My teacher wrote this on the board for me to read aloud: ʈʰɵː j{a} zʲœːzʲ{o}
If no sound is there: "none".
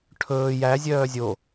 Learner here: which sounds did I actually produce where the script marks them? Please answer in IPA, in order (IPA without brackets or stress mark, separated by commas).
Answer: æ, o